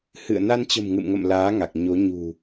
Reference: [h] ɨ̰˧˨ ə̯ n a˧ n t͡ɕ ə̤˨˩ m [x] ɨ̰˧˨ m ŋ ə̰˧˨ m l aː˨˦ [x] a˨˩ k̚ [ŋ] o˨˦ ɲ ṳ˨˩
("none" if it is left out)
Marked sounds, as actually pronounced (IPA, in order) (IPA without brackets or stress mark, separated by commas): h, ŋ, ŋ, ɲ